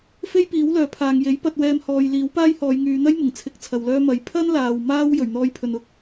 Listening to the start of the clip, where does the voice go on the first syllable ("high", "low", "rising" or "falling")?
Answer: high